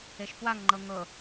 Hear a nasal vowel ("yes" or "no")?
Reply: no